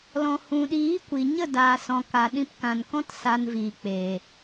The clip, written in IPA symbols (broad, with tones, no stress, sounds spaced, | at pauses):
l ɔ̃˨ h ũ˨ ɗ iː˨˦ kʷ i˨ ɲ ə˦˨ d aː˨ s ɔ̃˨ k a˨ ɗ ĩ˧ p k ã˨ n k ɔ̃˦ t s a˧ n v iː˨ k͡p eː˨